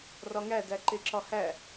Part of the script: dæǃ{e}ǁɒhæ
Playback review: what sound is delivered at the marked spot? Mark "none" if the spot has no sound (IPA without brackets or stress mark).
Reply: e